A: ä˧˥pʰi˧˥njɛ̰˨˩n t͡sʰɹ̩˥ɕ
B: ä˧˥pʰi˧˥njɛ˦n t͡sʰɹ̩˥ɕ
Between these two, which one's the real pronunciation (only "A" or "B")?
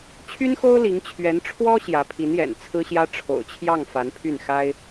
A